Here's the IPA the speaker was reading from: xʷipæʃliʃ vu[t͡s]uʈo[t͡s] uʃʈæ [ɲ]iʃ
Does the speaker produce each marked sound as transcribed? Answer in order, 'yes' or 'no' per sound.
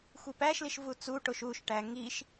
yes, no, no

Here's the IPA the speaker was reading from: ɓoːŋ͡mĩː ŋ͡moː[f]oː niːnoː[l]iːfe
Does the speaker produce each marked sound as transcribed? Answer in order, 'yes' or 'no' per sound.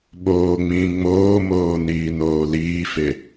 no, yes

